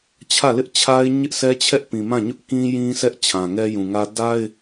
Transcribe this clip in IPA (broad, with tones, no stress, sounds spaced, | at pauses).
t͡ɕʰ ä˦˨ l ɪ˦ ʔ t͡ɕʰ a˦ ɪ̯ ɲ ɪ˦ ʔ s ɛ˦ t͡ɕʰ ɛ˦ ʔ p ĩ˨ m ã˦˨ ɲ ʊ˦ ʔ k ĩ˦ j ĩ˦ s ɛ˦ ʔ t͡ɕʰ ã˨ ŋ ɛ˦ j ũ˨ ŋ ä˦ d a˦ ɪ̯